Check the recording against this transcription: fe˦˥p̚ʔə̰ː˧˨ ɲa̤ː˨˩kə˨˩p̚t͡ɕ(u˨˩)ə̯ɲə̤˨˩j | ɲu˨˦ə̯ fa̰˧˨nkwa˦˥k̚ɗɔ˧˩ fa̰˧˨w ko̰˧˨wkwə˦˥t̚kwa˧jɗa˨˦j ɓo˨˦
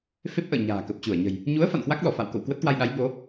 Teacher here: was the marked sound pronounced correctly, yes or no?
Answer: no